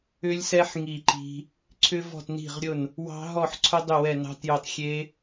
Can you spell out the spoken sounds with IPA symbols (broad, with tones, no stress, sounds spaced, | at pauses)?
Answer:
ʏ˦˥ lʲ s ɛ˦˥ ħ ŋ i˥˨ ǃ i̤˦˥ | ǀʰ ʏ˦˥ v ɔ̤˥˨ t n i̤˥˨ ʁ ɾʲ ʊ˥˨ n | w ɑ̤˦˥ ɦ ɔ˥˨ ħ ǀʰ ʊ˦˥ dˤ ʏ˥˨ w ɛ˥˨ n ɑ̤˦˥ t j o˥˨ tˤ xʲ e˦˥